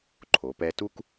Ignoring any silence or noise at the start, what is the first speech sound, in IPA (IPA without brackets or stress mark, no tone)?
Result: ǃʰ